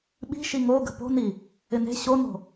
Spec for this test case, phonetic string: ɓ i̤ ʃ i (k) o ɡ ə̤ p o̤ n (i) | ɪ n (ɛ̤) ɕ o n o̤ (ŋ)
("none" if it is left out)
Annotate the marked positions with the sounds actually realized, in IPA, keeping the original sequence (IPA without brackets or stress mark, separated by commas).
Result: ŋ, i, e̤, none